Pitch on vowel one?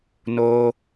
high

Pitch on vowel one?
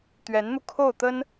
rising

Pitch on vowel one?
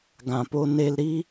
low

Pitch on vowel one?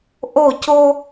falling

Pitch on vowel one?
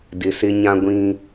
low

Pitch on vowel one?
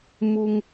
high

